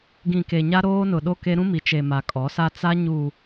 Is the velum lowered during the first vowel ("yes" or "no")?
yes